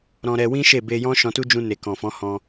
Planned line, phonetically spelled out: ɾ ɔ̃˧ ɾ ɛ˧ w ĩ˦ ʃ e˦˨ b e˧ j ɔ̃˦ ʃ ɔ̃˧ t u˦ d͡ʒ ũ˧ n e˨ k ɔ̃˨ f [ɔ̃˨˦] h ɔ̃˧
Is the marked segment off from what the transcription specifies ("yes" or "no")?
no